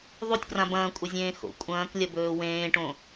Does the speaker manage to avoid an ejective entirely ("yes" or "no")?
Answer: no